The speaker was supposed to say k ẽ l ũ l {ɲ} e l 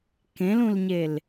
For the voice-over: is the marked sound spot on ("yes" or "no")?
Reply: yes